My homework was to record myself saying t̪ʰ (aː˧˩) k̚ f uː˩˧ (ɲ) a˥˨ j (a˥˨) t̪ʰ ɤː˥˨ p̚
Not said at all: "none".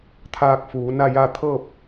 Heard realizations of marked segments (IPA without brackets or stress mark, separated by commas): aː˧, n, a˥˨